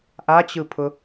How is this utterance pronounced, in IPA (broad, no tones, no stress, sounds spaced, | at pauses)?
ʔ a t͡ɕ ɯ pʰ ʊ